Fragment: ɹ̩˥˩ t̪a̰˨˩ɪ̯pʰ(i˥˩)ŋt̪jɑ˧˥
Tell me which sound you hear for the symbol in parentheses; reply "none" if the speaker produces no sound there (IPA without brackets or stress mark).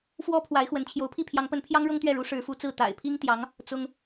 i˥